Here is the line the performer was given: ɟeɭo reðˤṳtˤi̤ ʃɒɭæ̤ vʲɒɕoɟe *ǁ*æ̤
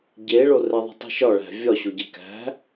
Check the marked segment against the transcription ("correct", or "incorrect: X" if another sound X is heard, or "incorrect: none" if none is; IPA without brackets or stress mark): incorrect: k